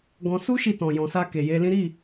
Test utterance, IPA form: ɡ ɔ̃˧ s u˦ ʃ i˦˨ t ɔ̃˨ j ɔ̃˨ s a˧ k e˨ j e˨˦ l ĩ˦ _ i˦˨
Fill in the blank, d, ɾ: ɾ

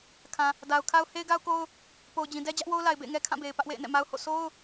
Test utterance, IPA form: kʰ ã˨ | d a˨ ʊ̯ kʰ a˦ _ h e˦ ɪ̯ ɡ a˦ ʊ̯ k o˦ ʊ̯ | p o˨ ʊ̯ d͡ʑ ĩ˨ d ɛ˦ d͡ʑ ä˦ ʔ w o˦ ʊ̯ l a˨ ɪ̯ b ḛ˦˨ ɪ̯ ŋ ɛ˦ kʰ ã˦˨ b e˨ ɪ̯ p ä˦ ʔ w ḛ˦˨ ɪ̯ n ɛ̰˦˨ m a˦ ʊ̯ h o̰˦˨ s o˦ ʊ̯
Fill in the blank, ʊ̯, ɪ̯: ʊ̯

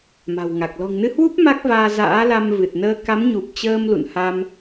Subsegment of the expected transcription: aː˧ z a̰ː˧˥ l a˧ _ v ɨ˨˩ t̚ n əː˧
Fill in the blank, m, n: m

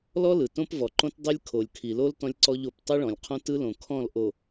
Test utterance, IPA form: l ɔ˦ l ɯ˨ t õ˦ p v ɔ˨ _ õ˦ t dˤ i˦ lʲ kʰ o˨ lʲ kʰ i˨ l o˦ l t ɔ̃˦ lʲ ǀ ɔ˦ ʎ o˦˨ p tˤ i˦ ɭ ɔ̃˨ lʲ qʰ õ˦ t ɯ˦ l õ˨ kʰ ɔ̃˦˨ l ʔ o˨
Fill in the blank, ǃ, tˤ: ǃ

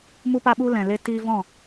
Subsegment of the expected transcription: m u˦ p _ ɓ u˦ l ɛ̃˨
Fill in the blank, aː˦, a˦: a˦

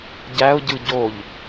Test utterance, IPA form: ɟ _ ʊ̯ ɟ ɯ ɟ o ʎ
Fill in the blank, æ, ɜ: æ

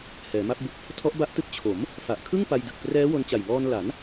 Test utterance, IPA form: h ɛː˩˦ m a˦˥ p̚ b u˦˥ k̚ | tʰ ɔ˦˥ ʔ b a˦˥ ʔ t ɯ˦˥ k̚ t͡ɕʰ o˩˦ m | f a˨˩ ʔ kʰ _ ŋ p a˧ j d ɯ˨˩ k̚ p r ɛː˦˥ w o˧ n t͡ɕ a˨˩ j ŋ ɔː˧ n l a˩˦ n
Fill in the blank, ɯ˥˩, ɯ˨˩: ɯ˥˩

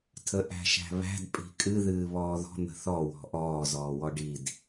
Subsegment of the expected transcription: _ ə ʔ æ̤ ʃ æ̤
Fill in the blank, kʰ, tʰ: tʰ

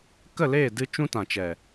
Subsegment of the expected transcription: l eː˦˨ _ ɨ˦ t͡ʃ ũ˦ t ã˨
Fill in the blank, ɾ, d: d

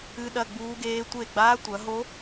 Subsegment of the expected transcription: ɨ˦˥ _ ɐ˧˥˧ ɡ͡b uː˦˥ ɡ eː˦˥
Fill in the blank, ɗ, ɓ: ɗ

